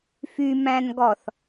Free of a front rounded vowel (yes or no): no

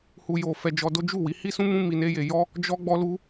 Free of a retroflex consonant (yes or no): yes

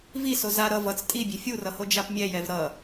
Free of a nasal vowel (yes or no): yes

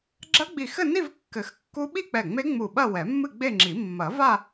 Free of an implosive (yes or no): no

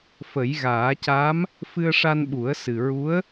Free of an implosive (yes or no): no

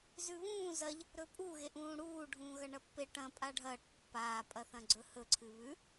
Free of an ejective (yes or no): no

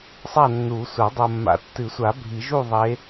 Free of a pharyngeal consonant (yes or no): yes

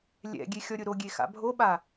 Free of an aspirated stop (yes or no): yes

